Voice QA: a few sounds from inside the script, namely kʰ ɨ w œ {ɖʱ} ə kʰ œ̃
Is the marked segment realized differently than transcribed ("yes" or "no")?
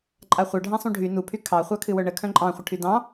yes